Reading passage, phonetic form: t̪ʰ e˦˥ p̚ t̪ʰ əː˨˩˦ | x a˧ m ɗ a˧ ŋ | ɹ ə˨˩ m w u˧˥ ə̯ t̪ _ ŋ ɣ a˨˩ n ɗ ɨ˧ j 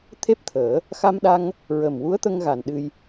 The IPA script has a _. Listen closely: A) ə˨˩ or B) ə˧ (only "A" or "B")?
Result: B